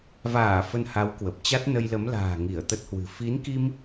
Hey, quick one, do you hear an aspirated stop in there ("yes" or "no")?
no